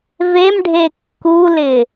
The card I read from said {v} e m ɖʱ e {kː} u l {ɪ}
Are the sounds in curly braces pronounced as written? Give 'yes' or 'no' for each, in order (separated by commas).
yes, yes, yes